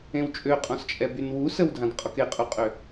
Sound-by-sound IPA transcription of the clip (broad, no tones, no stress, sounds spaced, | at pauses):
ẽ w t͡ʃʼ ø qʼ ɔ̃ s t͡ʃʼ ɛ b y n w u s ə w dʱ ã d qʼ ɔ k e qʼ u qʼ ø